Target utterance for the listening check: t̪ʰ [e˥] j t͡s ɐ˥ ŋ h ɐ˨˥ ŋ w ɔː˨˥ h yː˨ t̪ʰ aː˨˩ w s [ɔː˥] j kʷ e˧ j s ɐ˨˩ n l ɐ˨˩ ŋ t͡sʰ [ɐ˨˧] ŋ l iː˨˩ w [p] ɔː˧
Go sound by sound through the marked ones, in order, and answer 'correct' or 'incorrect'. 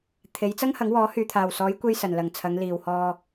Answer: incorrect, incorrect, correct, incorrect

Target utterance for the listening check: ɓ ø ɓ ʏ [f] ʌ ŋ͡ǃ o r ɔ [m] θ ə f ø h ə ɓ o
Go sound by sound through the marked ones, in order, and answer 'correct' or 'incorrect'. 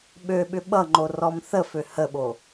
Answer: incorrect, correct

